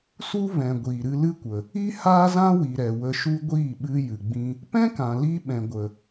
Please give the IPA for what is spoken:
su˦ vɛ̃˨ ɡʷiː˨ɾɨ˧lɨ˦kʷə˨ | i˦ haː˦zã˦wi˨ ɾɛ˨wə˧ʃu˦ ɡʷiː˦˨ɓɨ˧ jɨ˨ɡ͡bĩ˧ | pɛ̃˦kã˨ li˦ ɓɛ̃˨ɡʷə˨

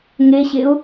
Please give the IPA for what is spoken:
ŋeɕeʊ̯

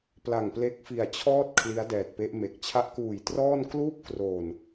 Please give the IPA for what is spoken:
pla˨˩ŋple˦˥k̚fi˨˩a̯t͡ɕʰɔː˥˩t̚ kʰli˦˥a̯dɛː˨˩t̚pe˦˥ʔme˨˩k̚ t͡ɕʰa˦˥ʔkuː˨˩jtrɔː˥˩n kluː˥˩p̚kroː˨˩n

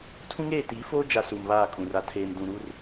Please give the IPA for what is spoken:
tʰũ˦ŋeː˦˨ tiː˨˦foː˦ d͡ʒa˨ suː˨mβaː˦˨kʼũ˨ ra˨tʰeː˨m dũ˨ɾu˦r

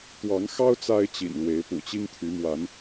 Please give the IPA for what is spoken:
t̪wɑ˨˦ŋxɑ˦ʊ̯ t͡sa˦ɪ̯t͡ɕḭ˨˩nlwe˨˦ɪ̯ pṵ˨˩t͡ɕi˦ŋt̪ʰy˨˦mwa˨˦n

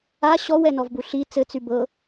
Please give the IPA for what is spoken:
a ɕɔwɛnɔvbu ɬi t͡sɘt͡sy bɤ

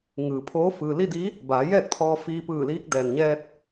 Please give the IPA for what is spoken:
ŋɯː˩pʰoː˧˥ fɯː˩li˥˨di˧˥ | baː˩˧jɛː˥˨k̚t̪ʰɔː˧ fiː˧pɯː˧˩liː˧˥k̚ dɛː˩nɲɛː˧t̚

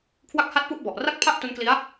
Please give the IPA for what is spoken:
kʰwa˥˩k̚ ha˥˩t̚ pu˥˩ʔbɔ˨˩ʔ ra˥˩k̚pʰa˥˩ʔ tu˦˥nkli˦˥a̯

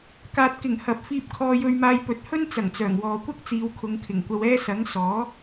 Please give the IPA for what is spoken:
kaː˨t̚kɪ˨˩ŋ hɐ˨p̚fiː˧p̚ kʰɔː˧jɵ˧ɥmaː˧j pɵ˨˥t̚hɵ˥nt͡sɐ˨˩ŋ t͡sœː˨˩ŋwɔː˨kʷɐ˥k̚ t͡siː˨˧wkʰʊ˨˧ŋkʰɪ˨˩ŋkʷɐ˧w ɛː˥sɐ˨˥ŋ sɔː˨˥

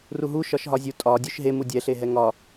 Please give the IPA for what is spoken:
ruɦu ʃɒʃɦɒzʲu tʼɒ dʲuʃɦemu dʲɛɬeɦɛ ŋɒ

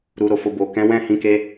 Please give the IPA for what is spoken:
ɾu˨ɾo˨fo˨ bo˨kɛ̃˨˦wɛ̃˦˨ hĩ˨˦ke˧

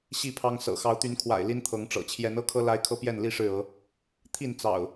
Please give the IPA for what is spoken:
ɕi˥˨pʰɑ˦ŋ sɤ̰˨˩ xɑ˨˦ʊ̯t̪y˨˦nkʰwa̰˨˩ɪ̯ li˦nt̪ʰɤ˨˦ŋʈ͡ʂɤ̰˨˩ t͡ɕʰjɛ˨˦nɤ˦kʰɤ˦ la˦ɪ̯kʰɤ˦pjɛ˥˨nli˥˨ ʂɻ̩˥˨ɤ˨˦ | t̪ʰi˥˨nt͡sɑ̰˨˩ʊ̯

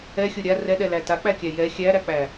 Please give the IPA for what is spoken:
ɛxʲo ɾʲa rɛɗɛlæ tak͡pækʲæ jɛ xʲæɾæk͡pæ

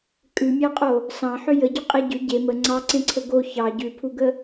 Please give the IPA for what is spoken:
kʼʉmʲɑqʼo | sɑ̃ħʏ jəɟʏ qʼeɟʏ ɟe mə ŋ͡ǀɑǀẽǀʰə ɡo çɑ ɟʉpʰuɡə

